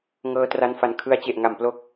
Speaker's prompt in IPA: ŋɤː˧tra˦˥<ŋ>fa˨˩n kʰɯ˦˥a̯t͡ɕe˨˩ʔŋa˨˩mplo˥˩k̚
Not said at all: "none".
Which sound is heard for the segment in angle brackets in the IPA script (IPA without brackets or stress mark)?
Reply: n